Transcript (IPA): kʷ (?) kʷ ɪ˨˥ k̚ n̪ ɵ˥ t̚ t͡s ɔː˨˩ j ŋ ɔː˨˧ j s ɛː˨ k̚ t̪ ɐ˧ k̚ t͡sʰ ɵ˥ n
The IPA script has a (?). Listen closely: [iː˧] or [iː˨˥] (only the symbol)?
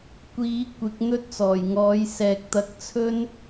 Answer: iː˨˥